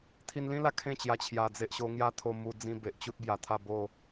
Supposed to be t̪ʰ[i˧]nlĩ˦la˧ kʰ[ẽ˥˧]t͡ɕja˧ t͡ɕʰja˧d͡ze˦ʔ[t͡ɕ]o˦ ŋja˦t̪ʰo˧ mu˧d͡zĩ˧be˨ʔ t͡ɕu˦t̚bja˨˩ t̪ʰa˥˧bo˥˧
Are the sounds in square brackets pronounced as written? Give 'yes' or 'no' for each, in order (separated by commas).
yes, yes, no